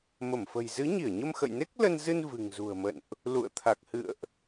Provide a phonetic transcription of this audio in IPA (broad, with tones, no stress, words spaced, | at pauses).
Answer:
mə˧˩mfə̤˨˩j zɨ˨˦ɲi˧˩ə̯ɲə˧m xə̰˧˨jne˦˥k̚lə˧nzɨ˧n vɨ̤˨˩ŋzṳ˨˩ə̯mə̰˧˨nʔ | lṵ˧˨ə̯t̪ʰa˨˩k̚hɨ̰˧˨ə̯ʔ